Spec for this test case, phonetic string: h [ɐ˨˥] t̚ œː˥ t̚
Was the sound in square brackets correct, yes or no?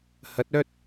yes